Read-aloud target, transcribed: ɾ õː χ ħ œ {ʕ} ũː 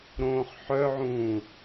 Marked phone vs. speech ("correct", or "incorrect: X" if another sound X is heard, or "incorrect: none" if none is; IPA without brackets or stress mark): correct